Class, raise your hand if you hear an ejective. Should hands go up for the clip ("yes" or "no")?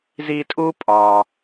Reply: yes